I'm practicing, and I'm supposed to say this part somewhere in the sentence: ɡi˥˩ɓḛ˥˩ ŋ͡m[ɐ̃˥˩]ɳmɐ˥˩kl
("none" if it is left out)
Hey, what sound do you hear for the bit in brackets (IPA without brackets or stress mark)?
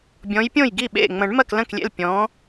ɐ̃˨˩˦